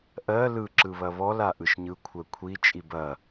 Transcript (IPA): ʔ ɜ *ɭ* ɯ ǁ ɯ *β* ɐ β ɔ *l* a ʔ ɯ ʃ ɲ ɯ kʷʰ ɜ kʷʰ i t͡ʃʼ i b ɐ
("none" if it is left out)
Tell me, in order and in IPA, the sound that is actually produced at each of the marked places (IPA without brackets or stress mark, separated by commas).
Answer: l, β, l